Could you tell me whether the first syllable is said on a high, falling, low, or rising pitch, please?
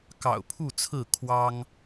low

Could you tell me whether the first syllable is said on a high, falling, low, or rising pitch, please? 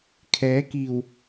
rising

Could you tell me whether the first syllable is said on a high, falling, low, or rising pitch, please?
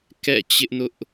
falling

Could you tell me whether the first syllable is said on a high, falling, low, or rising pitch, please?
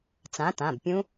rising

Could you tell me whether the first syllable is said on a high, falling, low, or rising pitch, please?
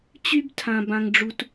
high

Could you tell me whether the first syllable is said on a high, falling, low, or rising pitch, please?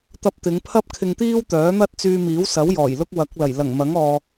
high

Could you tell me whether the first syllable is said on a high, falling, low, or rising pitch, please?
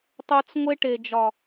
high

